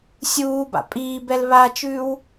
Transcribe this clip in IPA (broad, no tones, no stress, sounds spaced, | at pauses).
sʲ uː b a̰ pʼ iː b ɛ l β a t͡ʃ ʉː w